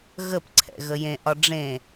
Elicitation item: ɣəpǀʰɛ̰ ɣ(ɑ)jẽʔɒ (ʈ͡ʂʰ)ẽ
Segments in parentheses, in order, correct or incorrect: incorrect: ə, incorrect: ɖ͡ʐ

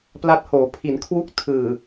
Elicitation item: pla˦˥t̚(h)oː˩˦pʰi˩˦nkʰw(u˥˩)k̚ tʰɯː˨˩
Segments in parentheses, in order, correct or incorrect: correct, correct

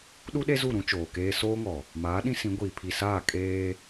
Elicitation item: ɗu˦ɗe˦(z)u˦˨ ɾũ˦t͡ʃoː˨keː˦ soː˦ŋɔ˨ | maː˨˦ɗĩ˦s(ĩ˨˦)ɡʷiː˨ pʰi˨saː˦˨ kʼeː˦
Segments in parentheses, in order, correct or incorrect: correct, correct

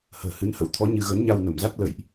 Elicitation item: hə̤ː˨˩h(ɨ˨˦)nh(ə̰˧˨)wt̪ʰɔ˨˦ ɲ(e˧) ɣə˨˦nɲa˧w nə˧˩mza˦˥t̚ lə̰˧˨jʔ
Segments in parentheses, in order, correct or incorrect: correct, incorrect: ə̰˧˥, incorrect: ɨ˧

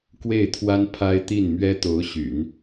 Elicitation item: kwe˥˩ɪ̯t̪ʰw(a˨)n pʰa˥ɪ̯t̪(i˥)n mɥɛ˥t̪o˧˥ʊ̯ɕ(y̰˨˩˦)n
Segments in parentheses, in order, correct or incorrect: incorrect: a˥, incorrect: i˥˩, correct

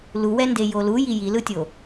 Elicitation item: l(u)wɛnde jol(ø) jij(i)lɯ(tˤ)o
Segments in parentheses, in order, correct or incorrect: correct, incorrect: u, correct, incorrect: tʲ

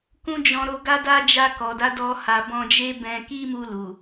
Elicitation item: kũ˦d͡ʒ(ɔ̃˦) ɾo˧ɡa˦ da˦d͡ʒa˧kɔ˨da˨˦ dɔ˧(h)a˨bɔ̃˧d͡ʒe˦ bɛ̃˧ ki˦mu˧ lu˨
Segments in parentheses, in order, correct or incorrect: incorrect: ɔ̃˧, correct

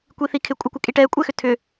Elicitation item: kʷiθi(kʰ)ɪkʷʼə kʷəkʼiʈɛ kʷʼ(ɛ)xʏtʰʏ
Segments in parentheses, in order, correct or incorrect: correct, correct

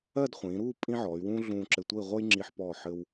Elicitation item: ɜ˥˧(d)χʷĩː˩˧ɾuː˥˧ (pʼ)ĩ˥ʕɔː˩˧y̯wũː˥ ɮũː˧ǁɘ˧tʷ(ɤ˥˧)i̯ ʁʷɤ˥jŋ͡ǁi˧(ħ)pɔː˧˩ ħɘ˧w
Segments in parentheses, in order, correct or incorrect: correct, correct, correct, correct

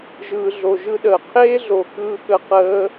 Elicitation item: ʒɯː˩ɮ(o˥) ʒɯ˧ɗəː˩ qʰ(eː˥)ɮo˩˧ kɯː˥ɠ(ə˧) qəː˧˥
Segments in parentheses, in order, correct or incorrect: incorrect: o˩, correct, incorrect: ə˥

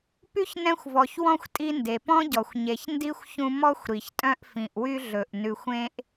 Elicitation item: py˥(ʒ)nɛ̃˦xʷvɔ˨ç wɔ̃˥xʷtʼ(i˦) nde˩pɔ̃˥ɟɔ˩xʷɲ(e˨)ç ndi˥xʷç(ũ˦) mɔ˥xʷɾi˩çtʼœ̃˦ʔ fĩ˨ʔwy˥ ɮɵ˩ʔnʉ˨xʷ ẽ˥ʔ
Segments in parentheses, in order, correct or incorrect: incorrect: ç, correct, correct, correct

